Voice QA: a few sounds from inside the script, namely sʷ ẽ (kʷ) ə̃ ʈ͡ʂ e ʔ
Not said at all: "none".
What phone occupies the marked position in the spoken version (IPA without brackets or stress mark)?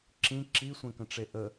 k